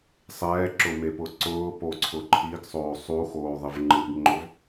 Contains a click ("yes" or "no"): yes